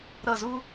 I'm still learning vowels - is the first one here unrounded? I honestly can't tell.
yes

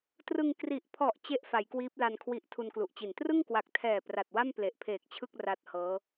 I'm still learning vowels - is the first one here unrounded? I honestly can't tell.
yes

